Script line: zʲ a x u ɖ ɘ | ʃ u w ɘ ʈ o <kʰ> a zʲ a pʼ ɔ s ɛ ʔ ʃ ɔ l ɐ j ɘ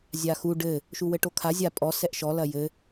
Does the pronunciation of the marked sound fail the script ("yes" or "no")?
no